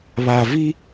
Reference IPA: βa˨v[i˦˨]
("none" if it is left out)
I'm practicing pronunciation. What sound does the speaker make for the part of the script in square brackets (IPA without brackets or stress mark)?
i˦